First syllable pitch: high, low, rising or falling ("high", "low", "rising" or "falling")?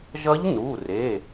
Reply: rising